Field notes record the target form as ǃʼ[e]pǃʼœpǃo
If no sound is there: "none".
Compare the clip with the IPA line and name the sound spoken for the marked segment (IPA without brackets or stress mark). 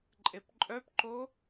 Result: e